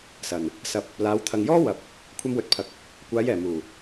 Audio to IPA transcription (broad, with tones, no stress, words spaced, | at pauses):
sɐ˨˩n | sɐ˨p̚ | laː˨˧wt̪ʰɐ˨ŋjɔː˥ wɐ˨p̚ | kʷʰɐ˧mwɵ˨t̚pʰɐ˨˥k̚ | kʷaː˨˧jɛː˨˩ muː˨˩